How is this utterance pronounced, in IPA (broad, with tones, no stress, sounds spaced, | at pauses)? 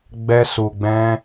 ɡ͡b ɛ˧ s u˨ ɡ͡b ɛ̃˧